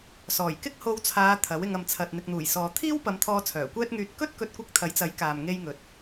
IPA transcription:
s ɔː˨˩ j k ɪ˥ k̚ h o˧ w t͡sʰ aː˨˧ t̪ʰ ɐ˨˥ w ɪ˧ ŋ ɐ˨ m t͡sʰ ɐ˨ t̚ n̪ ɪ˨ k̚ n̪ uː˨˩ j s ɔː˨ t̪ʰ iː˥ w p ɐ˨˧ m t̪ʰ ɔː˧ t͡sʰ œː˨˩ kʷ ɛː˥ t̚ ŋ yː˧ t̚ k ɵ˥ t̚ k ɵ˧ t̚ kʷ ɪ˧ k̚ t̪ʰ ɐ˨˥ j t͡s ɐ˨˥ j k aː˨ m ŋ e˧ j ŋ ɵ˨ t̚

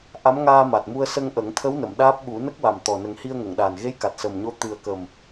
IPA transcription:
ʔ a˧˥ m ŋ aː˧ m a˨˩ t̚ m u˧ ə̯ s ə˧ ŋ ʔ ə˨˩˦ ŋ t̪ʰ ə˧˥ w n ə˨˩˨ m ɗ aː˦˥ p̚ ɓ u˨˩˦ n ə˦˥ k̚ w a˨˩ m t̪ ɔ˨˩ n ə˨˩˦ ŋ h i˧ ə̯ ŋ ə˨˩˨ ŋ ɗ aː˨˩ n ɣ e˧˥ j k a˨˩ t̚ s ə˨˩ m ɲ o˧ t̪ ɨ˨˩ ə̯ k ə˨˩ m

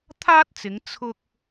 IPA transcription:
t̪ʰ aː˥ t̚ t͡s ɪ˨˧ ŋ t͡sʰ ʊ˧ k̚

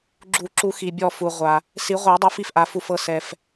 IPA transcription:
ɡ͡ǁ u˨˩˦ ǁ u˨˩˦ x i˩ bʲ ɔ˧˩ f u˩ ʁʷ a˩ | s i˨˩˦ ʁʷ a˨˩˦ dˤ u˨˩˦ f i˩ f ʔ a˩ f u˧˩ f ɤ˧˩ s ɛ˩ f

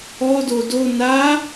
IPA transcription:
ɔ d o d o n a

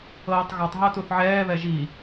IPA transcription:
ɤː tˤ ɣ ɔ tˤ ɦ ɤ t u θ ʕ ɛː β ɛ ʒ i

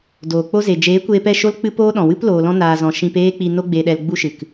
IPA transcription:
d oː˨ k͡p o˦ z e˨ d͡ʒ eː˨˦ kʷ eː˧ p ɛ˦˨ ʃ o˦ l k͡p ɨ˦ p oː˦ ɗ ɔ̃˨ w ɨ˦ p l oː˧ l ɔ̃˦ n aː˧ z ɔ̃˧ ʃ ĩ˧ p eː˦ k͡p i˧ n o˦ ɡ͡b e˧ ɗ ɛ˧ l ɡ͡b u˦ ʃ ɨ˨ k

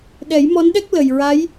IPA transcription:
ɗ ɛ˨˩˦ j m ɔ˧˥ n ɗ ɛ˦˥ k̚ l ə˨˩ j ɹ a˧˥ j

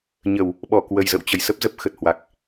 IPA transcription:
ɲ ə˧˩˨ w | ɓ ɔ˧˩ k w ə˨˩ j z ə̰˧˨ w t͡ɕ ə˧˩ j s ə˦˥ p̚ z ə˦˥ p̚ x ə˨˩ t̚ h w a˨˩ k̚

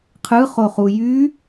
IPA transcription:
qʰ ɯ χ o χ u j y

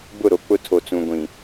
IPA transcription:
b ʊ˦˨ ɾ o˨ k͡p ʊ˦ tʰ o˨ t͡s ũ˨ ɡʷ ĩ˨

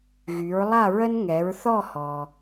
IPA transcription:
ɣ y˩˧ ɹ lˠ a˦˨ ɹ ə˦ n ŋ ɛ˩˧ ɹ θ ɔ˦˨ h ɔ˩

